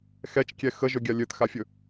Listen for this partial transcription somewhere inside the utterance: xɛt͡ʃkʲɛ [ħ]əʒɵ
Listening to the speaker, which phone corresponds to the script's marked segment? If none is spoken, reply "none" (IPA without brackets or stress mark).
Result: x